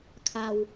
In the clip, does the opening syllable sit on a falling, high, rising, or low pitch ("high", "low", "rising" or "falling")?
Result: low